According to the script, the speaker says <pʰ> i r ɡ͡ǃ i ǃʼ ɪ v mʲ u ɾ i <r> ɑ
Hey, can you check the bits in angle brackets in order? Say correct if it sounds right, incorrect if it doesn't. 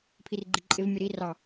correct, correct

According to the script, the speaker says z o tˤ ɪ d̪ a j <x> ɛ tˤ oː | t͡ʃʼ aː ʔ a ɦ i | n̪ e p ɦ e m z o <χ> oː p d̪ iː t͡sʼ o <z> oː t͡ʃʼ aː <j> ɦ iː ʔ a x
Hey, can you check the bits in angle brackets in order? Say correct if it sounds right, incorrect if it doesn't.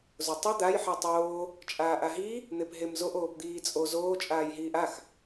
incorrect: ħ, incorrect: ʔ, correct, correct

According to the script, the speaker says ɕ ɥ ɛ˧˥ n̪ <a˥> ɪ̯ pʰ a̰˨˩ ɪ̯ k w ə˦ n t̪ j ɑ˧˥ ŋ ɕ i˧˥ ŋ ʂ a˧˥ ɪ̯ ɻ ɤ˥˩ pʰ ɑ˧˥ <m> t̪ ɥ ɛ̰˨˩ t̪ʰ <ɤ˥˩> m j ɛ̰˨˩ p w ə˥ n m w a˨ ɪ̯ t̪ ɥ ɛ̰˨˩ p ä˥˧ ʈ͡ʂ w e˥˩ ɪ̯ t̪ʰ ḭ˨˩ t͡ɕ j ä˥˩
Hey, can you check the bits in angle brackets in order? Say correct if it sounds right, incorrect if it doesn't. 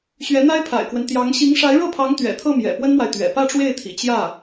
correct, incorrect: ŋ, correct

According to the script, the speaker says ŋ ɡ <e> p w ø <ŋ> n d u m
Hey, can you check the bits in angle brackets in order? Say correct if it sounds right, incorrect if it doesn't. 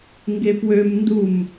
correct, incorrect: m

